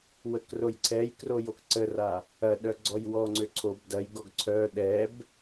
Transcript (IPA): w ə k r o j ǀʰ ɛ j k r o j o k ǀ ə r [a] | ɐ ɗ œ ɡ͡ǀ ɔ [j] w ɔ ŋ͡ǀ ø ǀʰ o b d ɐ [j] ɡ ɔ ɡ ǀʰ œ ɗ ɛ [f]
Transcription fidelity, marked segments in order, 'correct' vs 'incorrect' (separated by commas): correct, correct, correct, incorrect